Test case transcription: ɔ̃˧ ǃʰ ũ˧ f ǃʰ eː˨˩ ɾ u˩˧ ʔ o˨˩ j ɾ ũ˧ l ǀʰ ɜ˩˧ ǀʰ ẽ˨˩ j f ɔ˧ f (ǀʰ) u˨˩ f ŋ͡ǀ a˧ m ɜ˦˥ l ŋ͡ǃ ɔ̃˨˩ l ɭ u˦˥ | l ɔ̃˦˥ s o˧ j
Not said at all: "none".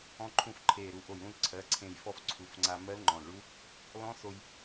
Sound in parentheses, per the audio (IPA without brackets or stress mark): ǀʰ